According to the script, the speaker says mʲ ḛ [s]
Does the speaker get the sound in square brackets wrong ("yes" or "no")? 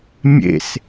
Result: no